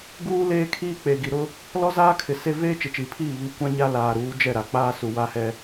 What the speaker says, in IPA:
ɡ uː˦ l eː˦ kʰ iː˦ k͡p e˨ ɡ i˨ ɾ ʊ˦ | l ɔ˦ z aː˦ kʰ ɪ˨ s e˦ v eː˦ t͡ʃ ɪ˨ t͡ʃ iː˨ pʰ iː˦˨ β i˦ kʷ ã˦ ɲ a˦ l aː˨ ɾ uː˨˦ d͡ʒ ɛ˦˨ ɾ a˨ k͡p aː˦ s u˨ w a˦ h ɛ˦

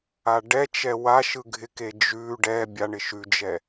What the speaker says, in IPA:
a ɖ ɛ t͡ʃ ɛ w a ʃ ɯ ɡʱ ɪ k e d͡ʒ ʉ ɖ ɛ bʲ a ɳ ɪ ʃ ʉ d͡ʒ ɛ

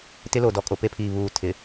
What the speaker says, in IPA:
t ɪ˦ l o˨ d ɔ˨ kʼ o˨ p e˦ pʰ iː˨ β uː˨ tʰ ɪ˨

